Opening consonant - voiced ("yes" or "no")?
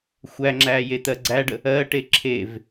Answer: no